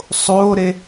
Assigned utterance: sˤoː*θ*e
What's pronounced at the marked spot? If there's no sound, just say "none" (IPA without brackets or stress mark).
ɾ